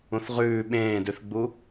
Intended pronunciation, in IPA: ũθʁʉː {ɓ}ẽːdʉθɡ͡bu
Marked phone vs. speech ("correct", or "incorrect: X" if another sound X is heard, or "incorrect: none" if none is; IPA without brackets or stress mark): correct